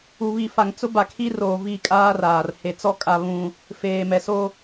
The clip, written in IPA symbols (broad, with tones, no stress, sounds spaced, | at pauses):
u˨ β i˨ f a˨ ŋ t͡s ʊ˦ b a˨ kʰ i˦ r oː˨ v i˦˨ kʼ aː˦ r aː˨ r h e˨ t͡s ɔ˦ kʼ a˦ β ũ˦ | f eː˨ m ɛ˨ s o˦